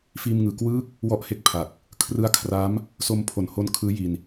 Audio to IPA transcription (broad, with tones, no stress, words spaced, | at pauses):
fiː˧mŋɯː˨˩kwɯː˥˩k̚ | wɔ˥˩ʔhe˥˩k̚pʰa˨˩k̚ | kʰrɯ˦˥a̯kʰra˦˥m | so˧mpʰo˨˩nho˦˥nkʰɯː˦˥ ji˧n